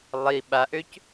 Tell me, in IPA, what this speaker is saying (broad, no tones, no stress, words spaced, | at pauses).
lˠi ɓaʔøc